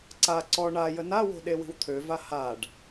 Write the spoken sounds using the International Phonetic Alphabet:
ǀa ǀɔ ɳa jənawo̤ ɗewi̤wt̪ʰøva haɖ

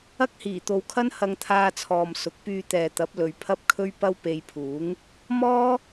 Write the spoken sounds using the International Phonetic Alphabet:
ɐ˥k̚hiː˨˩t̪o˨wkʰɐ˥n hɐ˧ŋt̪ʰaː˧t͡sʰɔː˨m sʊ˨˥k̚pyː˧t̪ɛː˨t̪ɐ˨˥p̚ lɵ˨˧ɥpʰɐ˥p̚kʰɵ˥ɥpɐ˥w pe˧jpʰuː˨˥ŋ | mɔː˥

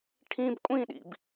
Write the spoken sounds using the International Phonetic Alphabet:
ʈʰĩb kʷʼĩɗḭb

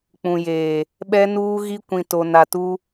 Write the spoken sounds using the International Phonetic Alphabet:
k͡pũ˨jeː˨ | ɓɛ˦nuː˦ɣi˦ kʷĩ˨to˨na˨ tu˦

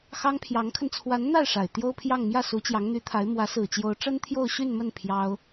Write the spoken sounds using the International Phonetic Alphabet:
xɑ˥ŋpʰjɑ˧˥ŋkʰə˧n t͡sʰwa˧˥nn̪a˥˩ɪ̯ ʂa˨˩ɪ̯ t̪jo˥ʊ̯pʰjɑ˥˧ŋ mjä˥˩su˧˥ t͡ɕjɑ˧˥ŋn̪y˧˥t̪ʰa˧˥ɪ̯ mwä˧˥sɹ̩˨˩t͡ɕjo˧˥ʊ̯ ʈ͡ʂə˥nt̪ʰjo˥˧ʊ̯ɕy˥˧nmə˥˩n pʰjɑ˥ʊ̯

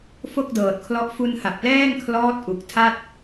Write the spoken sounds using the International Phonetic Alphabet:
fo˥˩k̚dɤː˨˩t̚kʰlɔ˦˥ʔ fu˧nha˨˩p̚lɛː˥˩ŋkʰlɔː˦˥t̚ ʔu˨˩k̚ tʰa˥˩t̚

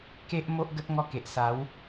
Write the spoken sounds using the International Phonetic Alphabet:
ke˦ʔ mo˦ʔɡə˦t̚ ŋɔ˦ke˨ʔ sa˨˦w

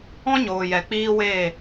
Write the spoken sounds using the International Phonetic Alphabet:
ɔ̃˦ ɲoː˨jɛ˨k͡piː˦weː˦˨

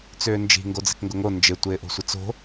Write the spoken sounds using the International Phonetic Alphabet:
t͡sʏːnd͡ʒi̤ ŋɡod͡ze̤kŋɡʊŋo nd͡ʒɪ tʷɪːʔo̤sʷɪt͡so̤

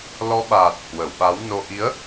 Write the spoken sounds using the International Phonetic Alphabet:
lɔ˨˦ɓaː˨˩t̚ hwə˧˩wɓa˨˦wno˧ ʔi˨˦ə̯

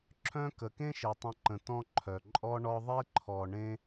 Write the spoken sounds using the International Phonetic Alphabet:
ǁʰœ̃˥kə˨ kẽ˥ʃe˩tˤə̃˨ǃə̃˩ tɔ̃˦ ǃʰœ˩ ǃʼɔ˦ɳɔ˦ðˤe˥ ǃʰɔ˨ɳẽ˦

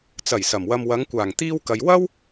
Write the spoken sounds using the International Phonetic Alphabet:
t͡sɐ˨˩j sɐ˨˩mwɐ˧m wɐ˨˧ŋkʷaː˨˩ŋ t̪iː˧w kɐ˨j wɐ˥w

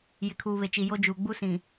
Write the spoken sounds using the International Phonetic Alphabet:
jɪ˨kʰuː˨βe˨t͡ʃi˨ jo˦d͡ʒuː˨ ɡ͡bu˦sĩ˨

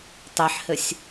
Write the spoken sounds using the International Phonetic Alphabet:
tˤɛħhɘsʲ

